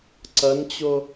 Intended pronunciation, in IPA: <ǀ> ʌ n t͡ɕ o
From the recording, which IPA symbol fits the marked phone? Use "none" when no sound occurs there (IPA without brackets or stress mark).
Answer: ǀ